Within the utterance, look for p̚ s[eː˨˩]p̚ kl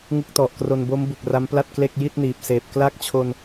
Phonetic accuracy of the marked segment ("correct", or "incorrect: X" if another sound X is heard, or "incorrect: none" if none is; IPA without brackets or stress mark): correct